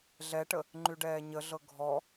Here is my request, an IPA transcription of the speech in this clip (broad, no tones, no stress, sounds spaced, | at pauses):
ɮ ɛ ʈ ə | ŋ͡ǃ y ɖ ɛː ɲ ə ɮ ɤ ɡʱ ɔ